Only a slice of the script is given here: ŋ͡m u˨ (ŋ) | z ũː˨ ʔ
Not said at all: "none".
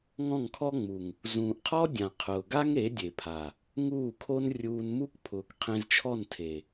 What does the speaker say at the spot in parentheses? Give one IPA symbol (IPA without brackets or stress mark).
ŋ